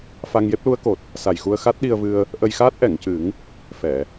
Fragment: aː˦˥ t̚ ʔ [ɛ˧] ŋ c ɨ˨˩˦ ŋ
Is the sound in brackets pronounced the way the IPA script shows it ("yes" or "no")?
no